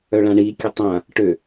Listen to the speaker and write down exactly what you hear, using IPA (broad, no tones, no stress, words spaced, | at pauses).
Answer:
œɭãɳikʲø tˤã | ʈø